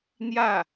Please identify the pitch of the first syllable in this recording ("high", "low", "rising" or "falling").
falling